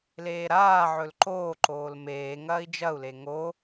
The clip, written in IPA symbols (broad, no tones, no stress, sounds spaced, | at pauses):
l eː ɾ aː ʕ ɵ l ǃ oː ǃ oː l m eː ŋ ɐː i̯ d͡ʒ ɐ u̯ l e ŋ o